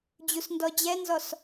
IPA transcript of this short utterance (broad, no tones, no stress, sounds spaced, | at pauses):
d͡ʑ u s n d ɔ d͡ʑ ɛ n z ɔ s